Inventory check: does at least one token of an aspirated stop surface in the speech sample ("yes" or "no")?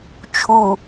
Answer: yes